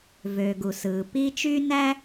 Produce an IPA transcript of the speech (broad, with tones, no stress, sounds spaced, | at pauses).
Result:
v øː˨ ɡ u˨ s ɯː˨ p i˦ t͡ʃ y˥ n æ˥